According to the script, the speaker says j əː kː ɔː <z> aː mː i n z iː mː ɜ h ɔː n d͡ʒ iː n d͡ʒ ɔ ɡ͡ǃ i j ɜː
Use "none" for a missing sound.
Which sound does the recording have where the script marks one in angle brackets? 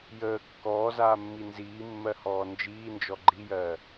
z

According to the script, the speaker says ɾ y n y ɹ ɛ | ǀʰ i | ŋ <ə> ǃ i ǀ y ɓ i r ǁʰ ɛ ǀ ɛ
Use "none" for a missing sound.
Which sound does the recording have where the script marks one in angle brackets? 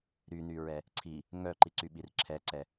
œ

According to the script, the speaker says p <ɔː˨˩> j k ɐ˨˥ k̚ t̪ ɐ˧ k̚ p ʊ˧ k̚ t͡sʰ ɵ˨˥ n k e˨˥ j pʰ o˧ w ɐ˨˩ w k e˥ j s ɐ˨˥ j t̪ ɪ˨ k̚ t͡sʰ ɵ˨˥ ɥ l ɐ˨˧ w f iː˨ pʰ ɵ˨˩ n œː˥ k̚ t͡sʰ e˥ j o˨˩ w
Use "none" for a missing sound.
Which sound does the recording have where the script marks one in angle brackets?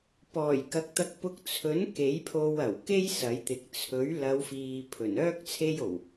ɔː˨˩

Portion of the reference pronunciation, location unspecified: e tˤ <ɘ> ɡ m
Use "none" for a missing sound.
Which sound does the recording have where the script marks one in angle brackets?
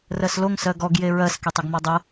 ɘ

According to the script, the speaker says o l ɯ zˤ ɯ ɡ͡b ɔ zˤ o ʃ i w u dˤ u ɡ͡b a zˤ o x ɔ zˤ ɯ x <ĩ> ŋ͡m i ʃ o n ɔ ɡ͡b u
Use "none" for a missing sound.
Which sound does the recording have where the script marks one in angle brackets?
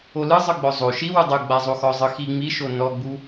i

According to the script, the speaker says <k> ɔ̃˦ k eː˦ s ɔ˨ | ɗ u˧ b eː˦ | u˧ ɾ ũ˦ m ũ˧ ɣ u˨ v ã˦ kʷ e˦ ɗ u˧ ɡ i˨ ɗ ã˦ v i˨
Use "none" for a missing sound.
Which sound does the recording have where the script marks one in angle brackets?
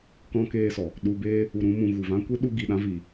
k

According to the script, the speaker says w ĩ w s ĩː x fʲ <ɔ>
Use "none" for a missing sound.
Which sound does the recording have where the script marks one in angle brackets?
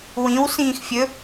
ɵ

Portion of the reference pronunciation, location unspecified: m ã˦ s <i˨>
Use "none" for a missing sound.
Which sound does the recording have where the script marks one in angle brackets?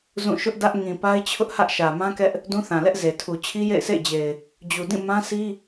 i˦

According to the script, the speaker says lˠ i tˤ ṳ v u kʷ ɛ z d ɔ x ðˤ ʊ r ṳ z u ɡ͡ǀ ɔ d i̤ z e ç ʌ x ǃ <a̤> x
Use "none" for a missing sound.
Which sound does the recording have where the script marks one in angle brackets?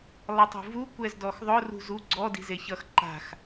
a̤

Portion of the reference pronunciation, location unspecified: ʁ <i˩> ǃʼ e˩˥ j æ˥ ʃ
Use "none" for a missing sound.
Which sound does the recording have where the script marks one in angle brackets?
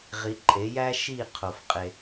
i˩˥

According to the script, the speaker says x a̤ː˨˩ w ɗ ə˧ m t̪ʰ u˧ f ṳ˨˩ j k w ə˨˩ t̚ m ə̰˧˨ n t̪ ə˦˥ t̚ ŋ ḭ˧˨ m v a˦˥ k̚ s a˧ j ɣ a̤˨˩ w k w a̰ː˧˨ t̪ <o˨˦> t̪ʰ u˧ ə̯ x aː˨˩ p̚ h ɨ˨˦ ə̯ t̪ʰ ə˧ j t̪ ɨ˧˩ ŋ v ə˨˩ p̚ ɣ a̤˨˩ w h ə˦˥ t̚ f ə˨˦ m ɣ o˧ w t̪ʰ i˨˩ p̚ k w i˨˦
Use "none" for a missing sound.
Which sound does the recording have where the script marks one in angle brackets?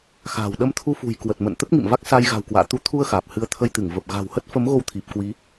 u˨˦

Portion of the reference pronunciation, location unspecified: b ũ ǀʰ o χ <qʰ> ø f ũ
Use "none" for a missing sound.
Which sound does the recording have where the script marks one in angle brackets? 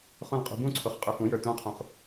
qʼ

